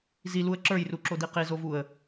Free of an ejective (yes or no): yes